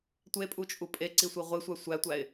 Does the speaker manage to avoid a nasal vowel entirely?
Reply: yes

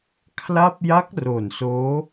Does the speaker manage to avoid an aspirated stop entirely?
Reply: no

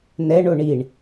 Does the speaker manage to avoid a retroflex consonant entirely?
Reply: no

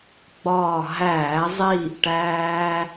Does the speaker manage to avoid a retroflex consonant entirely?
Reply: no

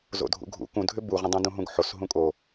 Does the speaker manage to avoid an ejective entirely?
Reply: no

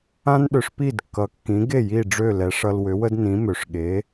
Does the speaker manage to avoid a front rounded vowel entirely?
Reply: no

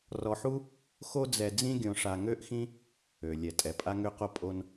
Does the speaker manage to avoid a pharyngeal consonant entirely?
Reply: no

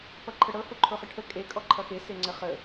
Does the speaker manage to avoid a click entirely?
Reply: no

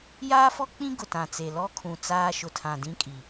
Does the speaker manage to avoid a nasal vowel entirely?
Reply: no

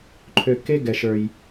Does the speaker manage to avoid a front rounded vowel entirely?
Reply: no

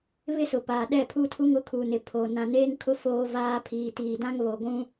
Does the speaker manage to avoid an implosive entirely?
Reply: no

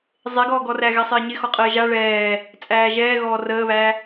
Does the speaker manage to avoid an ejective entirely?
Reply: no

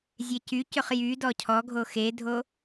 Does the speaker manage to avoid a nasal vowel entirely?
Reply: yes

